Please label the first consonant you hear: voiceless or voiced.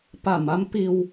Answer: voiceless